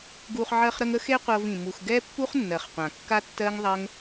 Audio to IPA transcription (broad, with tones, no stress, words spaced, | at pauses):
ɡu˧χ ʕɜ˧χɾə˧ŋ ə˦xe˦ qʷɤ˧vĩ˨ mu˨xɡɛ˦pːu˦χ nːɜ˨χqʷã˨ kːa˦tːɜ˦ŋ ðˤɜ˦ŋ